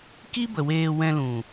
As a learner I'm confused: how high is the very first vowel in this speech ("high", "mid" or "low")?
high